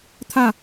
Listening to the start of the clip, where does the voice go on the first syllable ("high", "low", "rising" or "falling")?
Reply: falling